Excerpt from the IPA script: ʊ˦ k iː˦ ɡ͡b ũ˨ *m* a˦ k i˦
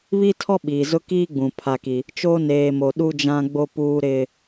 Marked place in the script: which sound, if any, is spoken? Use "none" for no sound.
pʰ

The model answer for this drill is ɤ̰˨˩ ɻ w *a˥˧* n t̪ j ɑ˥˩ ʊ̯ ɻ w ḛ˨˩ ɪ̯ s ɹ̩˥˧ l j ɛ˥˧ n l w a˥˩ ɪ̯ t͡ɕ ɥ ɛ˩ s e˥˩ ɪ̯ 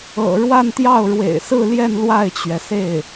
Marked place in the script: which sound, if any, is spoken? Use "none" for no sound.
a˥˧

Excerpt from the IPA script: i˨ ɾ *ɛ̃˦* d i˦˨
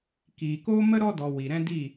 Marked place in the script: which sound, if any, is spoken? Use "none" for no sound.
ɛ̃˦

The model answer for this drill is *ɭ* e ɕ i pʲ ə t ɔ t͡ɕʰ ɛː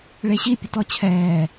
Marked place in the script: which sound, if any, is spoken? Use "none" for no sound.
ɭ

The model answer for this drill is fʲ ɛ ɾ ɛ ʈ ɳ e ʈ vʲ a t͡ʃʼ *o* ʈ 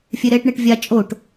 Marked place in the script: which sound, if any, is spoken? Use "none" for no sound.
o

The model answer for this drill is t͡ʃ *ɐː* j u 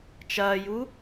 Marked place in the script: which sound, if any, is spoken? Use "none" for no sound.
ɐː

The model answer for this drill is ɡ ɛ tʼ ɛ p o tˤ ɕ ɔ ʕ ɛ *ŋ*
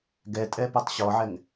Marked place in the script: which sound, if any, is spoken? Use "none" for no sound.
ŋ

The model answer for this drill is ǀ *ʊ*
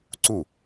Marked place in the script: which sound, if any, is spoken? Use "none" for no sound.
u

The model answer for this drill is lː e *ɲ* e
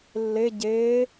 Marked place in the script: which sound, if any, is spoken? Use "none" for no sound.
ɟ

